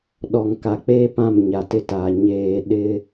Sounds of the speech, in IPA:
ɗɔ˨ŋka˨k͡peː˦ pã˦˨mɲa˨tɪ˦taː˨ ɲeː˨ ɗɪ˦

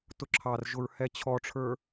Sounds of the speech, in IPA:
tʊǁʰɑrʒʊɹ hɛt͡ɕʰɔʈ͡ʂʰə˞

